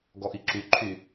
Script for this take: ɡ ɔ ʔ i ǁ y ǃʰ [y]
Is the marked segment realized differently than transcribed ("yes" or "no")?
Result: no